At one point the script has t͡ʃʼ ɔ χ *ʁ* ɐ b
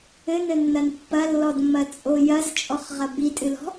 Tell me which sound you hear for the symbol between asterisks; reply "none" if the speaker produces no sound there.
ʁ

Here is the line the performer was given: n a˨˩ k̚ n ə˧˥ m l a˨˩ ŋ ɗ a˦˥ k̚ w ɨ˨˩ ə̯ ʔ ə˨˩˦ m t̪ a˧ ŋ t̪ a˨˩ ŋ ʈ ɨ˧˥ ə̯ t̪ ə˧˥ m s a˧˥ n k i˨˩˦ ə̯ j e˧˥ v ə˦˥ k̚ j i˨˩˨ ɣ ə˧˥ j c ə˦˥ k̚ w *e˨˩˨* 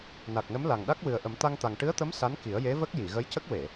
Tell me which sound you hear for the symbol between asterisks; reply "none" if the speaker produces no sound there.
e˨˩˨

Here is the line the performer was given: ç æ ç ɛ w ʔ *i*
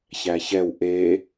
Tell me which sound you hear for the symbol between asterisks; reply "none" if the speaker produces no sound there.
e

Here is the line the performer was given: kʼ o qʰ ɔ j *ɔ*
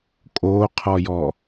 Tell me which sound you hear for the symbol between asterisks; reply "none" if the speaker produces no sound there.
ɔ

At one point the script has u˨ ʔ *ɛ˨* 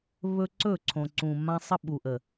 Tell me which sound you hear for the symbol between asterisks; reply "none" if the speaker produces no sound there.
ə˨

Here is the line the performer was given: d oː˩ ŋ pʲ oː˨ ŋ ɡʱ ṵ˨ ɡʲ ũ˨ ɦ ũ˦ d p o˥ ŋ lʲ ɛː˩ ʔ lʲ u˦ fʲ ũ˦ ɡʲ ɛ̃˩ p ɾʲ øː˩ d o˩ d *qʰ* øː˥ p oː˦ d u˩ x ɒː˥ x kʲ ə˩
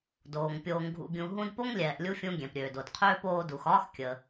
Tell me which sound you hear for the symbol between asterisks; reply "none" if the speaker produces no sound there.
qʰ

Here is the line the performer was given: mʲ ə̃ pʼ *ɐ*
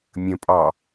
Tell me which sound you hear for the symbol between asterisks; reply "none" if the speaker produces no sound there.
ɑ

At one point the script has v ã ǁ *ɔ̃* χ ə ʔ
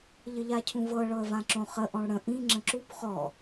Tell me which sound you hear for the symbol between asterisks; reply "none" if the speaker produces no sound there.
õ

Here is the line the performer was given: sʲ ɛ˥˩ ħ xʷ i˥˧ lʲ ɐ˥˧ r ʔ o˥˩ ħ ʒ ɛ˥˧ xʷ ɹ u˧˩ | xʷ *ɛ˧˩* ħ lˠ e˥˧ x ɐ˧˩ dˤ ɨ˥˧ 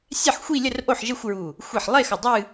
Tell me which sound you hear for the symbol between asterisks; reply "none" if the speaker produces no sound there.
e˧˩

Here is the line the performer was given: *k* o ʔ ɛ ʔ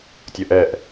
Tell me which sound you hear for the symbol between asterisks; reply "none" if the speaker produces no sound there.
tʲ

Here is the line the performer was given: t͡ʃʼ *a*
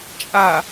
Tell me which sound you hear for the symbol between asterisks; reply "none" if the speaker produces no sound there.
a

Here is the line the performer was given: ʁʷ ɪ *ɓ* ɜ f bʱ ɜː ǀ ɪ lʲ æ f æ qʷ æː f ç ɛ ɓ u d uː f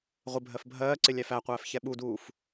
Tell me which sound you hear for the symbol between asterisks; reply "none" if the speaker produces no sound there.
bʱ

